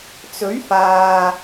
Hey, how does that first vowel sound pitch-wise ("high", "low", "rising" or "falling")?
rising